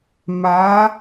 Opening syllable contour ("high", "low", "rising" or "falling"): rising